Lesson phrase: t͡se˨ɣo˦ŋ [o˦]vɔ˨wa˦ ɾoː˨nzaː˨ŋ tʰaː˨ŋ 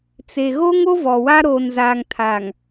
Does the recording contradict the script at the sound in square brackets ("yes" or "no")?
no